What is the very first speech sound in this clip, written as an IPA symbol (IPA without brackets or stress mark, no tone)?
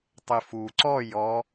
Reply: tˤ